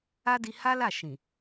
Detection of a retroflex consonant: absent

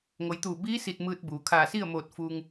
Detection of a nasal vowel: absent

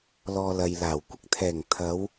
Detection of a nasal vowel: absent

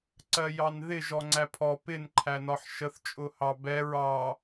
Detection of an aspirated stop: present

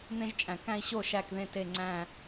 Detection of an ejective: present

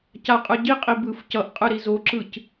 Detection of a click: present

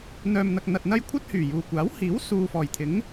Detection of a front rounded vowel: present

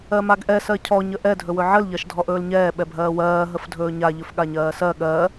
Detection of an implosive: present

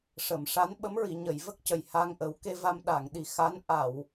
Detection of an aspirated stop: absent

